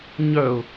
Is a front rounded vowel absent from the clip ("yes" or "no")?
no